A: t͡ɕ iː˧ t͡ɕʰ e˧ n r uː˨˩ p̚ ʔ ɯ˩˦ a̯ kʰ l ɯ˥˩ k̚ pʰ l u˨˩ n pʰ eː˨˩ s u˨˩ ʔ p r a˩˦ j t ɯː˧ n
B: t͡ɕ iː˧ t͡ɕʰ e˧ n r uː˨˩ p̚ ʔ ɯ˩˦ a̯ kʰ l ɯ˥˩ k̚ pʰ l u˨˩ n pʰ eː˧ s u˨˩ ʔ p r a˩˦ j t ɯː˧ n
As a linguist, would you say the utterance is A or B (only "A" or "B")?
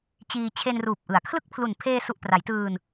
B